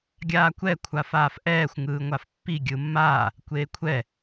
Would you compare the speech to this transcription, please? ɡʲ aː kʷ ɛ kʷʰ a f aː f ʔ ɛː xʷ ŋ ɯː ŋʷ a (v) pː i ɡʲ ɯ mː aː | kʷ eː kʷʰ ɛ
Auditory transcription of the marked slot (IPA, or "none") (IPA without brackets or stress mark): f